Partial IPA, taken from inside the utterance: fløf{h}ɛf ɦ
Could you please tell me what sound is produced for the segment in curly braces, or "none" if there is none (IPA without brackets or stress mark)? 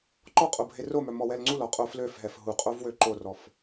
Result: ɦ